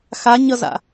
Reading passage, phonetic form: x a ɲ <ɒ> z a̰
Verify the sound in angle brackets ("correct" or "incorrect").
incorrect